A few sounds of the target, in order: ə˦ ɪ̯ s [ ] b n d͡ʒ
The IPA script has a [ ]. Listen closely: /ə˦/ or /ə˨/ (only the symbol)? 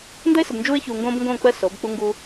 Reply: ə˨